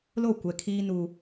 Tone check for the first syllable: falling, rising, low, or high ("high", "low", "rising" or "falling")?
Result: falling